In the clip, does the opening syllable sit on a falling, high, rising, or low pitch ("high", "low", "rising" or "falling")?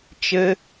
high